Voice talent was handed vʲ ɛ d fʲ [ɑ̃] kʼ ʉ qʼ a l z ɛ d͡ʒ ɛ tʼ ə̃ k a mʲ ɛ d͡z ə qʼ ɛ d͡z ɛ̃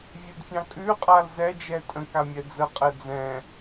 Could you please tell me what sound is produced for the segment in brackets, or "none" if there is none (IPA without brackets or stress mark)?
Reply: ɑ̃